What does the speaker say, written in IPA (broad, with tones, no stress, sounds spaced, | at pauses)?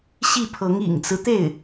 ɕ i˥˩ pʰ ɤ˧˥ ŋ ḭ˨˩ ŋ t͡s ɹ̩˦ t̪ e˥˩ ɪ̯